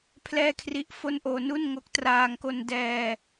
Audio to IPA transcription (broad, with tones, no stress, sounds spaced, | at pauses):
pʰ l ɛː˥˩ kʰ r i˦˥ ʔ f o˥˩ n ʔ oː˧ n u˥˩ n ŋ o˦˥ k̚ t r aː˧ ŋ k o˧ n d ɛː˧